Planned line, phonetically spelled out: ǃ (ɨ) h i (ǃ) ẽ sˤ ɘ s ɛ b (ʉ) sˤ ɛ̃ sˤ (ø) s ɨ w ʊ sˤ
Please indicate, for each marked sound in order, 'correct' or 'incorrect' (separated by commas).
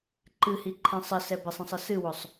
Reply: correct, incorrect, incorrect, incorrect